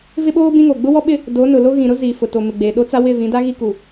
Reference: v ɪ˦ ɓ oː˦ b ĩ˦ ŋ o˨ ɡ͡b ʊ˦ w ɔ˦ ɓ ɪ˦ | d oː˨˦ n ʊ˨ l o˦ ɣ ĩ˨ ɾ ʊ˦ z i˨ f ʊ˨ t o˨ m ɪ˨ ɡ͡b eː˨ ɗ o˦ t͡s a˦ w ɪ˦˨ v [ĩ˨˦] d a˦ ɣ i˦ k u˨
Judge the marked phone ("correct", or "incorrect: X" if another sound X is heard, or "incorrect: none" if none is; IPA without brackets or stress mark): correct